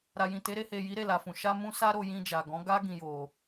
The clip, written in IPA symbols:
ɾa˨jĩ˨te˨˦ ɾe˧he˨ji˨˦ ɾe˦˨la˨fũ˨ ʃa˧mũ˧ sa˦ɾo˧jĩ˧ d͡ʒa˨ɡɔ̃˨˦ɡa˦ ɡĩ˦jo˧

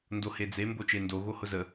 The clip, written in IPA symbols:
ndohed͡ze mbot͡ʃendo ɣohʊzə

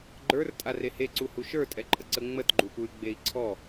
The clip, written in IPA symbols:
ɡ͡ǃə˞rtʼa reheǀu huʃə˞tʼɛǃʼə ǀəŋ͡mətɡ͡ǃupuy̯ ɡ͡bei̯ǀʰɔ

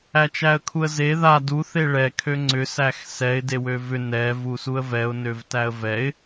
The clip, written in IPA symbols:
æt͡ʃæə̯kʰuə̯ze ða du θeɭɛ kʰøŋ͡ǀʏ sæxsɛɪ̯ dewøvʏ nɛ vusuə̯vɛʊ̯ nøvtæə̯vɛɪ̯

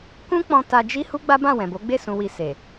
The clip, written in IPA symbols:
kũ˦k͡pɔ̃˧ ta˧d͡ʒi˦ hu˦ɡ͡ba˦bã˦˨wɛ̃˨ bo˨˦ɡ͡be˦˨ sũ˧wi˧ se˨

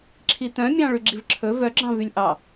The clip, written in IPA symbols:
ǁʰit̪œ̃mʲɑ̃ ɭyɡ͡ǁivǁʰɵ vœɡ͡ǁɑ̃ vylʲʔɑ

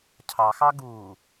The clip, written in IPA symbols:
cʰɑxɑ ɡu

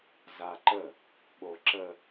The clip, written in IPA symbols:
zaǃə | ɓoǁə

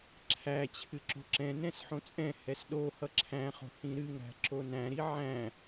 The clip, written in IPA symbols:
ǁʰæ t͡ɕʰɨǁo̤ǁɛ̃nɛ̃s ħõt͡sʼɛ̃hɛs ɗo hʌǁʰæ̃χo̤ hĩɾɨŋɾæ̤ ǁonæ̃ɾi ʕæ̃

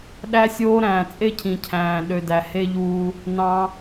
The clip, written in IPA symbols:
ɗæ˧sʲoː˧ ɾæ̃ː˨t͡sʼe˦cʰĩ˨cʰæ̃ː˨ ɗø˨dæ˨ he˦ʎuː˦ | nɑ̃˧

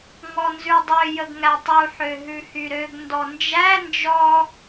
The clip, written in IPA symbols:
ŋɔnzʉdˤø jəɡŋætˤu ħøɦʉhyɾøɡ ndɔnd͡ʒæ nd͡ʒɔ

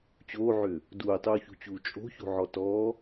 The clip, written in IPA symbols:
t͡ɕoːʕʏː | duːtˤuːçṳt͡ɕuː t͡ʃʼo̤ço̤ʕɔ tɔː

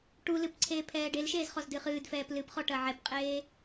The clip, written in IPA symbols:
ʈulɨp ǀʰeːpʰɛːɖelʃeːz χɔzdɨχɨːdfɛːp lɨpχɔ ʈɐʕɛpqʼeː

